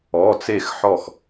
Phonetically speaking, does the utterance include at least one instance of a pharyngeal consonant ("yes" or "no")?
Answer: yes